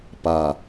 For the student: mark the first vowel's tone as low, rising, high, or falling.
low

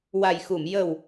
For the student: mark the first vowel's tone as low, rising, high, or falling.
low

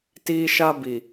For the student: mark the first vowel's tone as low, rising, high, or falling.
high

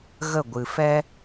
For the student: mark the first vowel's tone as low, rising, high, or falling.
falling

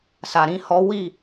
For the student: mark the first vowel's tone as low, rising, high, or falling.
low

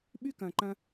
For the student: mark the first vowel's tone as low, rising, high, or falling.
high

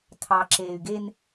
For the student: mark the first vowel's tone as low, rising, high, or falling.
low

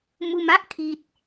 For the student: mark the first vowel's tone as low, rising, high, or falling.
low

